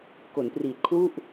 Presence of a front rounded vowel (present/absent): absent